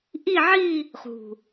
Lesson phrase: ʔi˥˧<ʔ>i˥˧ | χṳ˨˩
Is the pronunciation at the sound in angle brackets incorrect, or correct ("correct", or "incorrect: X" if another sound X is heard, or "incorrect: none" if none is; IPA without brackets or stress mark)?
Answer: incorrect: ʕ